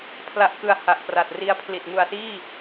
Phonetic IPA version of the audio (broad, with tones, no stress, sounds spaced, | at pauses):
pʰ l a˦˥ ʔ k ɯ˧ a̯ h a˨˩ ʔ p r a˨˩ t̚ r i˦˥ a̯ pʰ l i˨˩ t̚ ŋ u˨˩ a̯ s iː˥˩